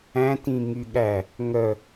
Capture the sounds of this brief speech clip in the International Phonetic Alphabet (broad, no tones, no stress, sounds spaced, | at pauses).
æ̃ t ĩ ŋ y ɠ æ | ŋ œ